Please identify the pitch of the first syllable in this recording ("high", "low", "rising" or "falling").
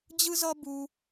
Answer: high